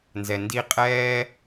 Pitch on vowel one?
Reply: low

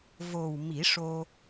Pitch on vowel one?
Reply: low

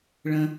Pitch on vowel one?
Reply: high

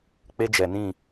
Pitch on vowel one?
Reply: high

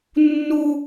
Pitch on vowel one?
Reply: high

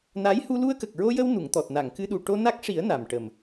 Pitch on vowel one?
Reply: rising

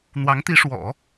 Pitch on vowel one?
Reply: rising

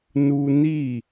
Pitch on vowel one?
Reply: high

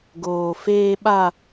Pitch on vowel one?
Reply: high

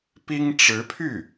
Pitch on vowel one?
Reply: high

